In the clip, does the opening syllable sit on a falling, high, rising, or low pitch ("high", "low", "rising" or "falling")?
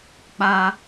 high